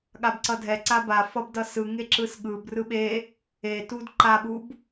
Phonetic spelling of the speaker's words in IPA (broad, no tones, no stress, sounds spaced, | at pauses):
ɠ a b ǀ ʌ dʱ ɛ ǀ a b a f ʌ b d ʌ s ɯ ŋ e ǁ ɯ s ɠ ɯ b r ɯ ɓ e | e t u d ǃ a ɓ u b